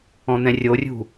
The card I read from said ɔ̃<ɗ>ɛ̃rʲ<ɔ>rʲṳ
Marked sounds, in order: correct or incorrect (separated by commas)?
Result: incorrect, incorrect